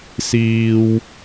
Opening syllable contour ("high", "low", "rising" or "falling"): high